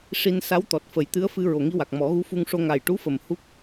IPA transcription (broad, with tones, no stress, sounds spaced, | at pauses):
ʂ i˧ n s a˧˥ w t̪ ɔ˨˩ t̚ f ə˨˩˦ j t̪ ɨ˧˥ ə̯ f ɨ˧ ɹ o˨˩ ŋ i˧ w a˨˩ k̚ m ɔ˨˩˦ ɣ u˧˥ f u˧ ŋ ʂ o˧ ŋ a˨˩ j ʈ u˧˥ f ə˨˩ m h u˦˥ k̚